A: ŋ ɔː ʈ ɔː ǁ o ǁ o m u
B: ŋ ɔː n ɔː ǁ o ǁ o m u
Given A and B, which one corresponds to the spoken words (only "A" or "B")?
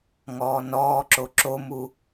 B